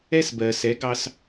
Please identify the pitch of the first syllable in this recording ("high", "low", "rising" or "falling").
high